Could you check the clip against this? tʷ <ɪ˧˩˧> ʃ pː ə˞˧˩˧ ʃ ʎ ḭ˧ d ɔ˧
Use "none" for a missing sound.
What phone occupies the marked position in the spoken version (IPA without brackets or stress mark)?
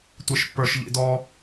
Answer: ɪ˧˩˧